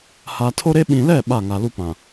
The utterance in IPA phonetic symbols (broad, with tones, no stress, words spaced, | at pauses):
ha˨tʰo˦ɾe˦ ɓĩ˨lɛ˦˨ ɓa˦˨ŋa˨lu˦pã˨